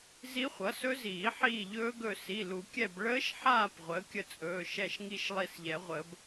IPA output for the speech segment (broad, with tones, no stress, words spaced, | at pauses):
zi˦˥χʷʌ˩˥sɵ˦˥ziː˨˩˦ ħiː˦˨ʎɵː˦˥ɡɵ˦˨ si˩˧˩lu˨˩˦kʲɛ˦˨b ɭəː˦˥ʃħaː˦˨p ʁʷəː˩˥kʲə˦˨t͡sʼɵː˩˧˩ ʃɛ˦˨ʃŋi˦˨ʃ lˠi˦˨sʎɛ˨˩˦ʁʷəː˨˩˦b